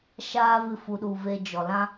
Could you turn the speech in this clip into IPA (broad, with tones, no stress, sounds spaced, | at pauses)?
ʃ aː˦ v ɨ˧ f u˨ ɗ u˨ v e˧ d͡ʒ ɔ˨ l ã˦